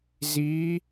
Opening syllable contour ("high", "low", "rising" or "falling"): rising